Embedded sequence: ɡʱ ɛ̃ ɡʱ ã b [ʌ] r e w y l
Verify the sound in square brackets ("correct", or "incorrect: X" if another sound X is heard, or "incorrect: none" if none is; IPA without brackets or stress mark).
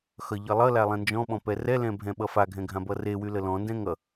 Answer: correct